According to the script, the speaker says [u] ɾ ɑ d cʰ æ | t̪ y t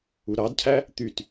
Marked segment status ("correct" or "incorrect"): correct